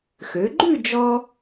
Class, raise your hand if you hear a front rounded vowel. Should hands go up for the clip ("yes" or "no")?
yes